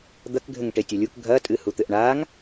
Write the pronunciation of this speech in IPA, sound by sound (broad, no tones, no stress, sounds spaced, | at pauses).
d̪ ɐ k ɡʱ ɘ ŋ ʈ e tʲ ɐ lʲ u k ɡʱ ɐ tʼ ɨ h u t̪ ɘ ʔ ɳ aː ŋ